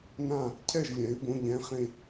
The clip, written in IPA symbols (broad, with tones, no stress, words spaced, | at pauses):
nã˥˨ | cʰɛ˥˨ʒlʲɛ̃˩˥ɪ̯ bõ˧˥˧ʎɛ̃˧˥˧χẽ˥˨